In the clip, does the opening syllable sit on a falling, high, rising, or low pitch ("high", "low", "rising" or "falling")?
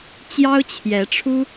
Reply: high